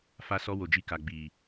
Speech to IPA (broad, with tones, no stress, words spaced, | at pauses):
fa˧sɔ˧ wo˨d͡ʒi˧ka˨ ɡ͡bi˨